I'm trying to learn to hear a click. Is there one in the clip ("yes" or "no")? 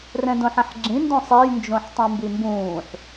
yes